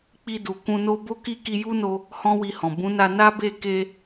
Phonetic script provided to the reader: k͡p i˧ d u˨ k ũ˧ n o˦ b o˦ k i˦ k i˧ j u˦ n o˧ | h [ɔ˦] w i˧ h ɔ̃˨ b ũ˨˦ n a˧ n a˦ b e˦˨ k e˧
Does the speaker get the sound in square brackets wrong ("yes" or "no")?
yes